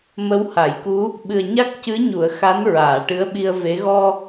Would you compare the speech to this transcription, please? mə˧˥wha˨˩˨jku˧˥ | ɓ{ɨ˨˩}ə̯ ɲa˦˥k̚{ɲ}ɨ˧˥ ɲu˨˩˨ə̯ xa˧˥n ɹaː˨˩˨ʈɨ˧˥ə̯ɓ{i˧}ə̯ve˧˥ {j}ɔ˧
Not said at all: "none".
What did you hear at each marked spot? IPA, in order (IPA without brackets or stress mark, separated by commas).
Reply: ɨ˨˩, c, i˧, ɣ